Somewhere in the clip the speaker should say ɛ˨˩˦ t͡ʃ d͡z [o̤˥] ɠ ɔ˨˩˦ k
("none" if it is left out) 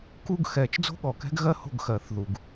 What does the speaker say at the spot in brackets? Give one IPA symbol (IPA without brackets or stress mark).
o̤˥